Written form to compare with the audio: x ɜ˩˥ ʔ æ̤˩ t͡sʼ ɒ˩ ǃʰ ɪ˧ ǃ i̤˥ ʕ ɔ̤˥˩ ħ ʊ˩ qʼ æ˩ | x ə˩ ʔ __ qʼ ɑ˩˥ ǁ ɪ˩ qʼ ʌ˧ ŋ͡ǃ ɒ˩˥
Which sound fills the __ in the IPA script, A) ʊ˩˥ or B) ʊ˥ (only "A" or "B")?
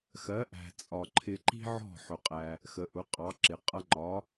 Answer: A